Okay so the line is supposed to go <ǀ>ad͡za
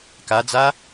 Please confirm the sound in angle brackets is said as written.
no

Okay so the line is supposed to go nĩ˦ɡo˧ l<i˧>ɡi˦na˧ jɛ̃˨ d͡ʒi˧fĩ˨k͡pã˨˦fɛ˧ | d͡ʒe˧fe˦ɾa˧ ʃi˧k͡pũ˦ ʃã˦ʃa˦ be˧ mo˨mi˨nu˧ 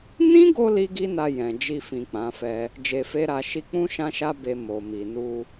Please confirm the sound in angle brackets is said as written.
no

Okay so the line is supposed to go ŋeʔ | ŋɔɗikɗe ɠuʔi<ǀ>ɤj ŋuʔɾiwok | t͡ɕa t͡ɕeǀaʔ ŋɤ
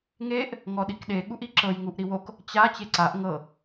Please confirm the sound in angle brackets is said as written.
no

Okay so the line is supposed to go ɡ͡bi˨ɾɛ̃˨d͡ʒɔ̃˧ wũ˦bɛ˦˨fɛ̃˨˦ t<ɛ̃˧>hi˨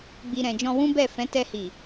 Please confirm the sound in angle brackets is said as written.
no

